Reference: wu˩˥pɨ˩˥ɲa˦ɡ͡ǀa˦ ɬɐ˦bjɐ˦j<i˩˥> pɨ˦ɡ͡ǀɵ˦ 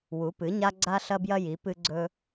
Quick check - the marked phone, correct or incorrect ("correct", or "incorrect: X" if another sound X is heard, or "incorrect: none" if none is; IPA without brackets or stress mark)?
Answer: correct